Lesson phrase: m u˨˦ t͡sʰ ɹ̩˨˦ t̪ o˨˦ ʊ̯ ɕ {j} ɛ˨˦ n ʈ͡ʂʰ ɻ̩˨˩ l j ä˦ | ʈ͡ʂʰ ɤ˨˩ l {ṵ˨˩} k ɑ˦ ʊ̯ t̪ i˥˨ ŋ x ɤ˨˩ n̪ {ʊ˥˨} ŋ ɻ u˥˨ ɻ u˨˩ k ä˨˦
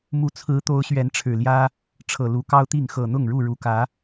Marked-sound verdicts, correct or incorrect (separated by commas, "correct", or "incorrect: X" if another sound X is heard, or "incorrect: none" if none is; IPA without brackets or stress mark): incorrect: ɥ, incorrect: u˨˦, correct